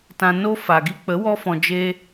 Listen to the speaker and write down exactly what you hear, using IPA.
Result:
t ã˧ n o˦ f a˨ ɡ i˦ k͡p ə˨˦ w ɔ˧ f ɔ̃˨ d͡ʒ eː˦

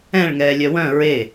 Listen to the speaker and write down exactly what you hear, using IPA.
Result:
ɛ̃ ɭ ŋ ɛː lʲ œ w œ̃ ɹ e

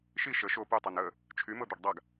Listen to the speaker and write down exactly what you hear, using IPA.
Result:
ʃ i ʃ ə ʃ o p y tˤ ɤ n ə | t͡ʃʰ y m ɤ d̪ ɤ ɖ dˤ a ɡ

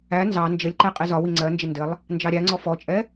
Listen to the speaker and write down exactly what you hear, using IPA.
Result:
æ n z ɑ n d͡ʒ ə lʲ ǃ ɛ qʼ i z ɒ w i ŋ͡ǀ ɜ n d͡ʒ ɪ n d ɪ lˠ | n d͡ʒ ɑ ɾʲ æ ŋ͡ǀ ɔ f ɔ t͡ʃʼ ɛ

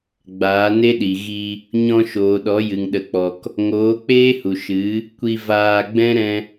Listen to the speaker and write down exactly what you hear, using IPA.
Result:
ɡ͡b aː˨˦ n e˦ ɗ i˨ ɣ i˧ | ɲ ɔ̃˧ ʃ oː˨ ɗ ɔ˨˦ j ɨ˨ ŋ ɗ ə˧ k͡p ɔ˧ k | ŋ oː˨˦ k͡p eː˦ h u˨ ʃ ɨ˨˦ | kʷ i˧ v aː˧ ɡ͡b ɛ̃˦ ɾ ɛ̃˦

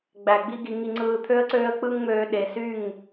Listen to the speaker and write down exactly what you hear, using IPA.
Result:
ɡ͡b æ˨ ɡ͡b i˦ ɡ i˧ ŋ i˧ ŋ͡ǀ ɯː˧ t̪ʰ ø˦ ə̯ ǀ øː˦ ə̯ k͡p ɯ˦ ŋ ŋ͡m øː˧ ɗ e˨ s y˦˨ ŋ

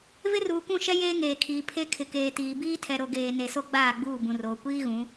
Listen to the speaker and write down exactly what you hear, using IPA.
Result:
v ɪ˦ r uː˨ kʷ ũ˦˨ ʃ ɛ˦ j eː˦ ŋ eː˨ kʰ iː˨ pʰ e˦ kʰ ɪ˨ k eː˨ t iː˨ b iː˦ tʰ ɛ˨ ɾ o˨ ɡ eː˨ n e˨ s o˦ ɡ͡b aː˦˨ ɡ͡b uː˦˨ b ũ˨ r oː˨ kʷ iː˦ ɣ ũ˨˦

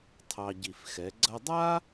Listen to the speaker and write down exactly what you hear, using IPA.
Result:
tʰ ɑ˧ ɟ i˧˩ f x ɛ˩˧ ɡ͡ǀ ɐ˧ dˤ a˥

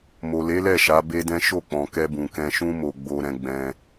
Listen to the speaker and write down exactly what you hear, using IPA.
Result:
m o˨ l e˨˦ l ɛ˦˨ ʃ a˨˦ b e˦ d ɛ̃˦ ʃ o˦˨ k͡p ɔ̃˨ k ɛ˧ b ũ˨ k ɛ̃˧ ʃ ũ˦ m o˧ ɡ͡b o˦ ɾ ɛ̃˦ ɡ͡b ɛ̃˧

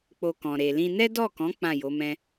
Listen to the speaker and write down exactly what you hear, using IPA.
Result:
k͡p o˧ k ɔ̃˨ ɾ e˨ l ĩ˧ n ɛ˦ d ɔ˦˨ k ɔ̃˨˦ k͡p ã˦˨ j o˨˦ m ɛ̃˦

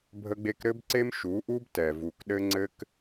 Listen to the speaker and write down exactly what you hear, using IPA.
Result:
bʱ ə˦ ɡ͡b e˦ k ɾ ɘ˦ b ǀ e˦ m ʃ u˨˦ ʔ u˦ b t ɛ˨ v u˨ k ɗ ɘ˦ ŋ͡ǀ ɘ˦ k

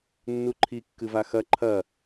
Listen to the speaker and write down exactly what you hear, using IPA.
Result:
nː u ǃʰ i kː ɨ v a x ɐ ǃʰ ɐ

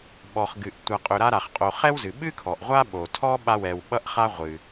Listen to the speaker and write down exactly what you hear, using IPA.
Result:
ɓ ɔ˨ χ ɡ ɨ˨ ʔ tʷ a˨ qʼ ɵ˨ ɾ a˦ ɾ a˩ χ qʼ o˨ χ ɛ˥ w z ɨ˩ ɓ ɨ˥ kʰ ɔ˩ ʔ ʁʷ a˦ ɓ o˩ tʰ ɔ˥ ɓ a˦ w ɛ˨ w ɓ ʌ˥ ʔ χ a˥ ʁʷ ɨ˩

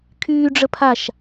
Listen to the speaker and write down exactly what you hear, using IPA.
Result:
kʰ yː ɖ͡ʐ ə pʰ a ʃ

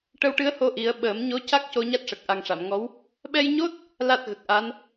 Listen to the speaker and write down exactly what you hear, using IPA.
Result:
ʈ ə˧ w ʈ ɨ˧˥ ə̯ h o˧ ʔ i˨˩˦ ə̯ ɓ əː˨˩˦ m ɲ o˧˥ c a˦˥ k̚ c o˧ ɲ a˦˥ t̚ ʂ ə˨˩ k̚ ʔ a˨˩ ŋ ʂ a˨˩˨ m ŋ ɔ˧˥ w | ɓ ɛ˧ j ɲ o˦˥ t̚ | l a˦˥ t̚ ɣ ə˨˩ k̚ ʔ a˧˥ n

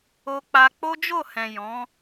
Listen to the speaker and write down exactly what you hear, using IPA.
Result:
o˧ k͡p a˧ k͡p o˦ d͡ʒ o˦˨ h ɛ̃˨ j ɔ̃˨˦

